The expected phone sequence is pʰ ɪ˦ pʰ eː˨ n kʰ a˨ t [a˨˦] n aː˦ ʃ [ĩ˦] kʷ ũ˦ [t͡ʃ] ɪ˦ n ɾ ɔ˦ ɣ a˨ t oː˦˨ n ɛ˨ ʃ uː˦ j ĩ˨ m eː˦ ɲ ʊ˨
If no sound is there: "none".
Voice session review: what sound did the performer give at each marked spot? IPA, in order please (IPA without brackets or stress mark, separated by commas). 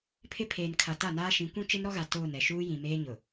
a˦˨, ĩ˨˦, t͡ʃ